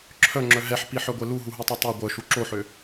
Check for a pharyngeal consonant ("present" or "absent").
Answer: present